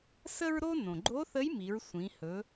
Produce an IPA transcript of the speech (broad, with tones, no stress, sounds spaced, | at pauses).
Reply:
s ə˥ ɹ ɾ o˥ n õ˩ ɡ͡ǃ o˧˥ θ ə˧˥ j m i˩˧ ɹ sʷ ĩ˩˧ h ɵ˩˧